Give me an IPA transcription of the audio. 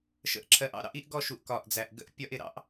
ʃə̰˨ʔǁʰɜ˨ʔɑ̰˦ ɾɑ̰˦ʔi˦ʔɡɔ˦˨ʃu˨ʔ kɒ˨ʔd͡zæ˨ʔɡə̰˦ʔ pʲɒ˦ʔ ɪ˨ɾɑ̰˦ʔ

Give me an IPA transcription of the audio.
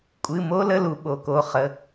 kʷʼɨ˩˧˩mo˦ lə˦lu˩˧ ɓo˩˧ko˩˧˩ χə˩˧˩

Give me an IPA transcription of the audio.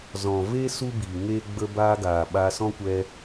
zɔ̃˨ve˦ su˦bi˨ŋe˦ ɡ͡bə˧baː˧ ɡaː˨ɓa˧sɔ̃˦kʷɛ˧

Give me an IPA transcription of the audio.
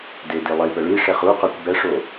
dedi lˠipə ɭi ʂɛχuqœkʷ bɛʂo

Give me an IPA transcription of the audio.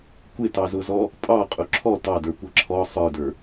kʷɪtɑzʊzɔ | pʼɑqʼʊ ǁʰɔ tɑdə˞kʷʌ ǁʰɔ sˤə˞də˞

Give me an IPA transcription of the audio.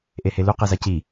ʔehelu qezaci

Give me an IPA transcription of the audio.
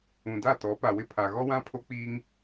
ũ˨da˦˨tɔ˨˦ pa˨wɪ˦pʰa˨ ɣɔ˦wã˦ pʰo˦k͡piː˦ŋ

